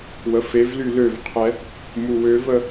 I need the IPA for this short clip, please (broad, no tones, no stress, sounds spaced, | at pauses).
w ə f e v l y l ø v qʰ ɛ | m u w ø v ə